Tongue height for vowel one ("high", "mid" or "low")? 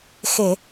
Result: mid